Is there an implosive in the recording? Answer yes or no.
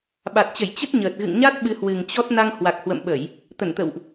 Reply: yes